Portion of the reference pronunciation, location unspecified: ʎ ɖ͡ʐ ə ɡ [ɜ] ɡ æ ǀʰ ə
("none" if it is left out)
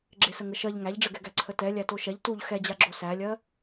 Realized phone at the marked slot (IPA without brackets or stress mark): ɛ